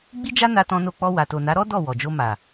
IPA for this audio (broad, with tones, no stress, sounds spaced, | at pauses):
ɡ͡b i˦ d͡ʒ a˦ n a˧ t ɔ̃˧ n o˧ k͡p ɔ˧ w a˨ t o˨ n a˨˦ ɾ ɔ˦ d ɔ˦˨ w ɔ˨ d͡ʒ o˧ m a˨